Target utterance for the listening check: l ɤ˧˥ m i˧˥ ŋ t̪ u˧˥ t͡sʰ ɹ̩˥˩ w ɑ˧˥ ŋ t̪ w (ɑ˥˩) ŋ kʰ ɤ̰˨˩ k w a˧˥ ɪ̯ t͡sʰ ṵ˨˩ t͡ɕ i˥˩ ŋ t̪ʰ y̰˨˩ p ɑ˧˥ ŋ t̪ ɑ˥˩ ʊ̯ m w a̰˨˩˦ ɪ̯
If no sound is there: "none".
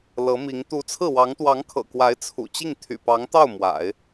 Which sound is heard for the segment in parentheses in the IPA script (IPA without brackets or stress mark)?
ɑ˧˥